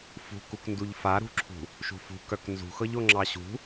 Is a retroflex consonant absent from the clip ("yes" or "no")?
yes